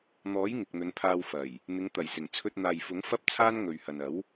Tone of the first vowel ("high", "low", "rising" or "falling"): rising